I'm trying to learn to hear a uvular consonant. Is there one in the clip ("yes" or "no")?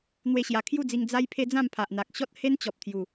no